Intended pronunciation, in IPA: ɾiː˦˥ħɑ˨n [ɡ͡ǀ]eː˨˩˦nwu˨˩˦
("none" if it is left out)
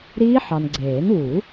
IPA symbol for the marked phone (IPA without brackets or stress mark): ɡ͡ǀ